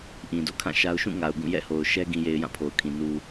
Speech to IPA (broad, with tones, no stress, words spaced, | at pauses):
ʔĩ˨do̰˦˨kʰã˦˨ʃa˦ʊ̯ ʃũ˦˨ ŋa˨ʊ̯ɡũ˦˨jɛ̰˦˨ho˨ʊ̯ ʃɛ˦ ɡĩ˨je˨ɪ̯ jã˦˨pʰo˨ʊ̯kʰĩ˨ nu˨